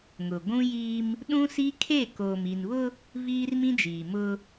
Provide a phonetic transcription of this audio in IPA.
ŋ ʊ˨ ɡʷ ũ˦ j iː˦ m | ɗ ũ˦ s i˦ kʰ e˦˨ k oː˨ m i˨ n β ʊ˦ | v iː˦ r m ĩ˦ d͡ʒ iː˨ m ʊ˦

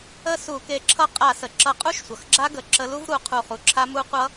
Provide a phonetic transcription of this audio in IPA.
ə˥˨ s u˧˩˧ k e˨˥ ǁʰ ʌ˦˥ qʼ a˧˩˧ s ə˩ ǁ ʌ˧˩˧ qʼ u˦˥ ʃ sʷ ʌ˩ x ɡ͡ǁ a˦˥ ɡ ə˩ ǁ ə˨˥ l u˦˥ v ɾ u˨˥ qʰ u˧˩ χ u˩ ǁʰ a˦˥ m u˦˥ qʷ ʌ˦˥

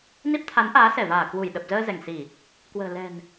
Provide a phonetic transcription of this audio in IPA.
n i˦˥ p̚ t̪ʰ a˨˦ n ʔ aː˨˦ s ɛ˧˩ v aː˧˩ k w u˧˩ j ɗ ə˨˩ p̚ z əː˧ z ɛ˧˩ ŋ s i˧˩˨ | k w ə̤ː˨˩ l ɛ̤˨˩ n

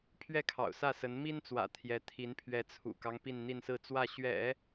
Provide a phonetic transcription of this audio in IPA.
pʰ ɥ ɛ˥˩ kʰ ɑ̰˨˩ ʊ̯ s ä˥˩ s ə˧˥ n m i˥ n t͡s w ä̰˨˩ t̪ʰ j ɛ˧˥ t̪ʰ i˧˥ n pʰ ɥ ɛ˧˥ t͡sʰ ṵ˨˩ k ɑ˦ ŋ p i˥˧ n n̪ i˥˧ n s ɹ̩˥˧ t͡s w ä˥˩ ɕ ɥ ɛ̰˨˩˦

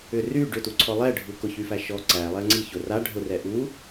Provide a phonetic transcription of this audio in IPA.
ʏ r y ɖ ʏ t u ǀʰ ɔ lˠ ɛ ɖʱ u k ʊ ç y f æ ʃ ɔ ǀ æ lˠ ɛ ŋ͡ǀ i ç ʊ r a ɖʱ ʊ r ɛ ʔ u

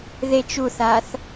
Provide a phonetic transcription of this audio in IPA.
ð e t͡ʃ u θ a θ

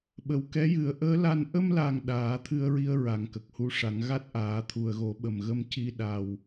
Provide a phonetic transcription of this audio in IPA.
ɓ ə˨˩ w k ɛ˧˥ j ɨ˨˩˦ ə̯ ʔ əː˧˥ l a˧ n ʔ ə˧ m l a˨˩ ŋ ɗ aː˨˩˦ t̪ʰ ɨ˧ ə̯ ɹ i˧ ə̯ ɹ a˨˩ ŋ k ə˨˩ k̚ h u˧ ʂ a˨˩˦ ŋ ɣ a˦˥ t̚ ʔ aː˨˩˦ t̪ʰ u˨˩ ə̯ ɣ o˨˩˦ ɓ ə˨˩ m ɣ ə˧ m c i˧ ɗ a˨˩ w

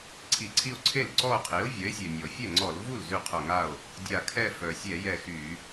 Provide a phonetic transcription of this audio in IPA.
ǀʰ i˧˩ ǀʰ i˥˧ o̯ ǀʰ e˥˩ l ǀ ɔ˥˧ o̯ qʰ i˩˥ o̯ vʲ œ˩˥ e̯ sʲ ø˩ nʲ ɔ˩ fʲ ɛ˥˩ ŋ͡ǀ ɔ˧˩˧ l v u˥˩ l z y˥˩ qʰ œ˧˩ ŋ a˥˩ o̯ | dʲ a˧˩ kʰ ɛ˥˧ f œ˩ sʲ ɛ˧˩˧ j ɛ˧˩ x y˧˩˧

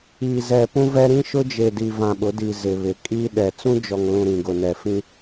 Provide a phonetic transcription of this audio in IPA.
i˨ z ɛ˨ p ũ˦ v ɛ˦ ɾ ĩ˦ ʃ ʊ˦ d͡ʒ e˨ d i˨ v ã˨ ɓ ʊ˨˦ d i˨ z ɪ˨ β ɪ˨ kʼ i˦ ɗ ɛ˨ t͡s ũ˦ d͡ʒ ɔ˨ ŋ l ũ˨ ɾ ĩ˨ ɡ ʊ˨ n ɛ˨ f ĩ˦

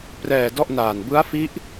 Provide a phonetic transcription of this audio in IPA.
p r ɛː˨˩ d ɔ˥˩ ʔ n aː˨˩ n b ɯ˦˥ a̯ f i˦˥ ʔ

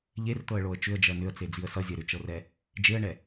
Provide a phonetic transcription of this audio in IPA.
ʎ e r t̪ ɤ ə̯ ɭ o ə̯ t͡ʃ ʏ ə̯ d͡ʒ ɜ n ʏ ə̯ t͡s e d͡z i ə̯ s ʌ zʲ ɜ ɾ ʏ t͡ʃ ɤ r ɛ | d͡ʒ e ə̯ ɳ ɛ

